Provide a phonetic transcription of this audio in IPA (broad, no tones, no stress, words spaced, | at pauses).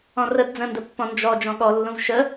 ɔ̃rəd d͡zə̃ndəpːɔ̃ nd͡ʒɔ d͡ʒɔ̃ɠɔlːũv ʃə